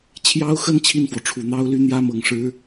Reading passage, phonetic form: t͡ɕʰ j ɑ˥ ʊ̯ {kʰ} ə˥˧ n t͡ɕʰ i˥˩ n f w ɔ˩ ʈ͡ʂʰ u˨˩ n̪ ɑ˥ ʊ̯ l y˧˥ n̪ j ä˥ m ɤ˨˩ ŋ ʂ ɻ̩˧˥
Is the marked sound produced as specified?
no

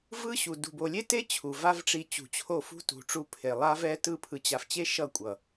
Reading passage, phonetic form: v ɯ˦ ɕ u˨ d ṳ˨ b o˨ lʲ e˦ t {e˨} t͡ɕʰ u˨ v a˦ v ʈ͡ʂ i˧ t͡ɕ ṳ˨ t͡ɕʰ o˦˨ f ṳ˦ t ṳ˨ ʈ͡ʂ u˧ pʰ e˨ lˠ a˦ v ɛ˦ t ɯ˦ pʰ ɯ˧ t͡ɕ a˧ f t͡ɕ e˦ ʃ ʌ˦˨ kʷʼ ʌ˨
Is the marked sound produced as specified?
no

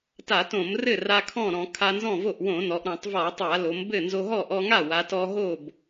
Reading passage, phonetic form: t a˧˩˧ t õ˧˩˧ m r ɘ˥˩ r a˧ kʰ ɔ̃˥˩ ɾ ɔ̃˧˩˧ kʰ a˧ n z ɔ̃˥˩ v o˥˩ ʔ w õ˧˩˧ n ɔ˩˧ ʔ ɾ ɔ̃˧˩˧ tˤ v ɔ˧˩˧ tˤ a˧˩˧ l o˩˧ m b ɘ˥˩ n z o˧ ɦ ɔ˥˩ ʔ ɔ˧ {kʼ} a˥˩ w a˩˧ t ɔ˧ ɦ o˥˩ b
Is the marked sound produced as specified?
no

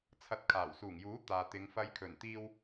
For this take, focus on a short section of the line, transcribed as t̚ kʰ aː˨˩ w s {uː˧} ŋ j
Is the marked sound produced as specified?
no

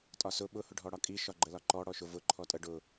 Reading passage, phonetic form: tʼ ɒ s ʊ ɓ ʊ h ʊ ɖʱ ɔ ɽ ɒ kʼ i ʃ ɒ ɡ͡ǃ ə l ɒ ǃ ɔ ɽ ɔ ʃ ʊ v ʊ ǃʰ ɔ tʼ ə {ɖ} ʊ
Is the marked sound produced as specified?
yes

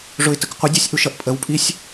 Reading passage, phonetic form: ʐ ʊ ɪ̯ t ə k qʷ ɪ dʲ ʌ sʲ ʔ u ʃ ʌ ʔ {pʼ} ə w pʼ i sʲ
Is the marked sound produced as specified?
yes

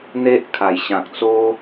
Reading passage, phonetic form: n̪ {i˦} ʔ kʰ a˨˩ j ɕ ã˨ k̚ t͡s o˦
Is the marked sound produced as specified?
no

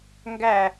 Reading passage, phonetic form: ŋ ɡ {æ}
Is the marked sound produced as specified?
yes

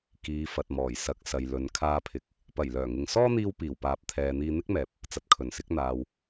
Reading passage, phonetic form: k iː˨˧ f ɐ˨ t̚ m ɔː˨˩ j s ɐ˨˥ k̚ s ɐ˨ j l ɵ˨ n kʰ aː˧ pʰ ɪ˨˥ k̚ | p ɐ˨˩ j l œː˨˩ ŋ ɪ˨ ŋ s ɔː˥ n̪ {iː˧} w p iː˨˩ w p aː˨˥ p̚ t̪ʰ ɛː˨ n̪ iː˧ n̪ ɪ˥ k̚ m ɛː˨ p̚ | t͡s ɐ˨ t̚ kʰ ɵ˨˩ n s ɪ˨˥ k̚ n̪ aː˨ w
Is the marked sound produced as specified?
yes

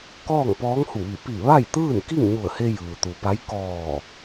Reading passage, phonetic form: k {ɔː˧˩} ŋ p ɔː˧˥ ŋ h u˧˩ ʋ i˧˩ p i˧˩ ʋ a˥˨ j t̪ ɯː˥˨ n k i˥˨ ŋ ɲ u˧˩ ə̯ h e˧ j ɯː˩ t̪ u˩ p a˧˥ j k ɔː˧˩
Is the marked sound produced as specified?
no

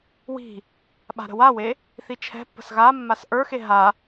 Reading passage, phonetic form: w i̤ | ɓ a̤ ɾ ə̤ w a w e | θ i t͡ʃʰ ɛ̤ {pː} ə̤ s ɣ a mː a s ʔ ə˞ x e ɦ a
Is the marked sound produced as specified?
yes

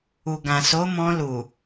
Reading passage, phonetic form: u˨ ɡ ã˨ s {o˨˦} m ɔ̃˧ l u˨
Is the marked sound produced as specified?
yes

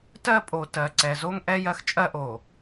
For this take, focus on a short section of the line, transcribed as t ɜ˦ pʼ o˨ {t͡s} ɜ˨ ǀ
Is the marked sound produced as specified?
no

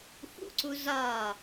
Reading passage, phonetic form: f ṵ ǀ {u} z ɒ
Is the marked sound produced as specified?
yes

